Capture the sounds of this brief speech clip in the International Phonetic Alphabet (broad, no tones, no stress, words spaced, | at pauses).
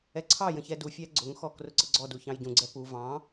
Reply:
ɛǀʰɑjə̃ çɛdufʲæ ɡ͡ǀʊŋxɔ krʊǀəɡ͡ǀɔdu çɑ̃jɟũɡ͡ǀɛ pu vɑ̃